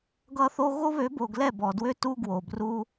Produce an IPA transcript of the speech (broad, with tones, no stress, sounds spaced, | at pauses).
ɡ ʌ˦ θ o˦ ɣ o˦ β ø˨˦ b o˨ ɡ l ɛ˦˨ b ɔ˨ d w ø˦ t u˦ ɡ w o˨ b r u˦